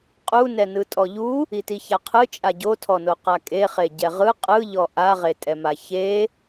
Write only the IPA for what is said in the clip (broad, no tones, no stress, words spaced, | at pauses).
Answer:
qʼunɛnɯ tʼɔʎu | itiçaqʰɯ t͡ʃʼaɟotʰɔno qakʼeχe ɟɛʁɯ qʼɯʎɔ ʔaʁetʼɛma çe